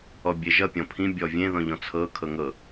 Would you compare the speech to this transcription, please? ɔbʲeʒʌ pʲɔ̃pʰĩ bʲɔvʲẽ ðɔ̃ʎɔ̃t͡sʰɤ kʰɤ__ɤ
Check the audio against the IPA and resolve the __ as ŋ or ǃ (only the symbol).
ŋ